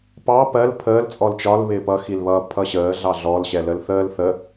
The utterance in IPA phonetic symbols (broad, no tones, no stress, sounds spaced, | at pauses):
p ɑ p ɜ l pʰ əː l t͡sʼ ɔ l t͡ʃ ɒ l β ɪː p ʌ x i l β ʌ pʰ ʌ ɕ əː ɮ ɑ ɮ ɔ l ɕ ɛ l ə l θ əː l θ ə